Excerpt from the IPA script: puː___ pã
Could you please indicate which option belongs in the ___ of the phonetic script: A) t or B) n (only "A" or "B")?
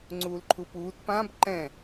A